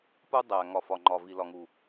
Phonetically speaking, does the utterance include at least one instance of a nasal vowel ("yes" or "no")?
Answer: no